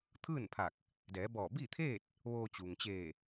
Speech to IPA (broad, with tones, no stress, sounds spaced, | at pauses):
t̪ʰ ɯː˥˨ n pʰ a˧˩ k̚ | d ɛː˩˧ b ɔː˧˩ b iː˥˨ t̪ʰ eː˥˨ t̚ | ʋ oː˧ t͡ɕ u˩ ŋ t͡ɕ eː˧˩